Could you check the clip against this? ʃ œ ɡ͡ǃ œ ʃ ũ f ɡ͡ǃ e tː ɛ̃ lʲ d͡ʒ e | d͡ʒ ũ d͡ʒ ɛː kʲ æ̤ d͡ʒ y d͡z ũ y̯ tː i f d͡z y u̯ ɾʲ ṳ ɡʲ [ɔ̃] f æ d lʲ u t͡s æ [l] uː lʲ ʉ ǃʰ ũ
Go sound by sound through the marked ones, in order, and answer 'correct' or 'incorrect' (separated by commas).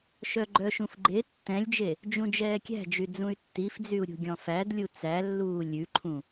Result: correct, incorrect